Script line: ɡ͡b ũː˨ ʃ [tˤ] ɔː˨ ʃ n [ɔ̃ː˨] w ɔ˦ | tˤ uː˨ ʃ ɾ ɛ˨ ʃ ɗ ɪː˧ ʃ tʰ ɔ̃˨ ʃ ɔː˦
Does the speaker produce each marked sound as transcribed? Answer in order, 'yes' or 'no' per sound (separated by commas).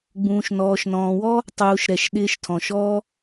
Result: no, yes